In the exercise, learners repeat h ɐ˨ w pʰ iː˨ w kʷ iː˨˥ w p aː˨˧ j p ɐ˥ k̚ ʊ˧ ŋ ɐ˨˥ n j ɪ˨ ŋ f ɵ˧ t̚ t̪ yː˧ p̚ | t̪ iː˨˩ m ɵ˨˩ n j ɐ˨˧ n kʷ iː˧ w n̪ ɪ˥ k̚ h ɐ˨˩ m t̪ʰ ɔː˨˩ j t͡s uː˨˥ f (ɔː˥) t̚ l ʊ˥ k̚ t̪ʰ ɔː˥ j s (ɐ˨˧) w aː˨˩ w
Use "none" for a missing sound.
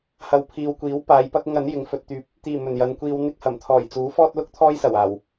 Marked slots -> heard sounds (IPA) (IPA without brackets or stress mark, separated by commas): ɔː˥, ɐ˨˩